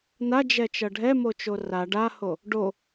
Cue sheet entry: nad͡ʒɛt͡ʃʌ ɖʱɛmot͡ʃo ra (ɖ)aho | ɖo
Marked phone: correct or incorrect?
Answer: correct